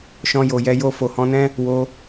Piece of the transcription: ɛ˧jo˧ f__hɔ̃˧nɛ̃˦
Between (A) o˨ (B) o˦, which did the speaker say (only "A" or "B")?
A